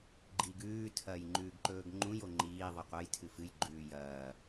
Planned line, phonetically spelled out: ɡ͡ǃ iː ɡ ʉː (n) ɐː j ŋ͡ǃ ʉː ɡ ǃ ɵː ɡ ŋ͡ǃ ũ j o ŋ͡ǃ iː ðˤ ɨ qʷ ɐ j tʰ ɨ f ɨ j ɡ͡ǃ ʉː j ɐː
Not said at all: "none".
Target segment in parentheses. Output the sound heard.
tʰ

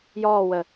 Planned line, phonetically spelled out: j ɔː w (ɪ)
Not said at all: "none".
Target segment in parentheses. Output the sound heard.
ə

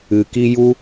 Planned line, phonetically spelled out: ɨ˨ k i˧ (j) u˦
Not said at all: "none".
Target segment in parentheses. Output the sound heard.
j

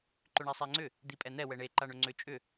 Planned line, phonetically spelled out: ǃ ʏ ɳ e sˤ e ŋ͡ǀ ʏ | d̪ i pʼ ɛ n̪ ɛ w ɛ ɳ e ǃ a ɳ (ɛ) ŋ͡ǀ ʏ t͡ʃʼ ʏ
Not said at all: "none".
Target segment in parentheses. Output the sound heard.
ʏ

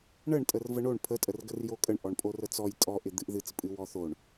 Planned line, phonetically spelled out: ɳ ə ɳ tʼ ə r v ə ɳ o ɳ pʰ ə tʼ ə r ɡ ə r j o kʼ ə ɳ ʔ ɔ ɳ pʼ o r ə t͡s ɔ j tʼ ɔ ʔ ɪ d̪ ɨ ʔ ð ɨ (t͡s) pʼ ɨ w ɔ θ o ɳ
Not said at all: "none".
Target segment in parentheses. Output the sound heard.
t͡s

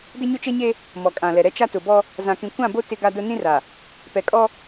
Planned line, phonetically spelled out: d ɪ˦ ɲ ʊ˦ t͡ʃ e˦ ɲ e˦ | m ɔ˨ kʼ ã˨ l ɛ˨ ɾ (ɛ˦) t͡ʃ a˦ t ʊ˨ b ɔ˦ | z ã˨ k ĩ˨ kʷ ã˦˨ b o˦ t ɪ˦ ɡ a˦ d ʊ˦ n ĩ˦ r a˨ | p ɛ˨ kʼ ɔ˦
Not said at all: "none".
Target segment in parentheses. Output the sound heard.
ɛ˦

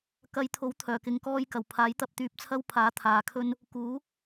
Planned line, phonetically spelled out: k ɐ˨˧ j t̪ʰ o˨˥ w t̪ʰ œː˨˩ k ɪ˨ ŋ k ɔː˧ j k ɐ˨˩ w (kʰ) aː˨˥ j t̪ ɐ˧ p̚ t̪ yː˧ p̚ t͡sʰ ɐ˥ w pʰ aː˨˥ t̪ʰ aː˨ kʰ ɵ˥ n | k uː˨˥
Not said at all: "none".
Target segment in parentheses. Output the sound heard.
pʰ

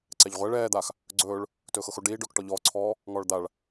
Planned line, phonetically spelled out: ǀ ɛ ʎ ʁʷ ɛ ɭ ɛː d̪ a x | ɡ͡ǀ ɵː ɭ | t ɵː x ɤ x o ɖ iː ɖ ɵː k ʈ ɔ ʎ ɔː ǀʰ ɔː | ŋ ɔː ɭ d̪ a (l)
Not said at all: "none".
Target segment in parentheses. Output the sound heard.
ɭ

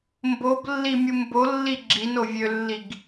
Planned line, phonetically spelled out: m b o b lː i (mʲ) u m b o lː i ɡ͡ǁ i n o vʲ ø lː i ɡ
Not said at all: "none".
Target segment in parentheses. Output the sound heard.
mʲ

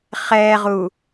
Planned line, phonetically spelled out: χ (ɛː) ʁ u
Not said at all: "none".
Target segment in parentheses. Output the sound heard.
ɛː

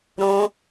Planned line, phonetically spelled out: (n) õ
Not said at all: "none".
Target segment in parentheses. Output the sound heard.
ɾ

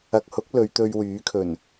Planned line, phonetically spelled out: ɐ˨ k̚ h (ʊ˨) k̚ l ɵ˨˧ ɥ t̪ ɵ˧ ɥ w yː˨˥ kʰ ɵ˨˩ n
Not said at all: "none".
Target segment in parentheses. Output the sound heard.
ʊ˨˥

